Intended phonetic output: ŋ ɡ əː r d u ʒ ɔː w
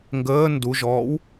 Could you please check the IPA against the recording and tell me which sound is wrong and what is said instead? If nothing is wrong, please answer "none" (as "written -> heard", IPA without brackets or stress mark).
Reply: r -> n